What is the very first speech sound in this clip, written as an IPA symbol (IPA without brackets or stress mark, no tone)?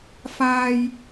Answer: f